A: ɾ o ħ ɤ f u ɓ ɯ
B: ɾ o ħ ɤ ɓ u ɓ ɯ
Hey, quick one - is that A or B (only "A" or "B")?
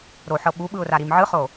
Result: B